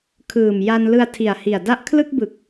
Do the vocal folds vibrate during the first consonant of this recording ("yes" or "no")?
no